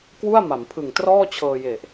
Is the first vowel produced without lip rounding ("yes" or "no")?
no